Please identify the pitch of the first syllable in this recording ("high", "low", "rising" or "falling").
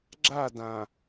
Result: falling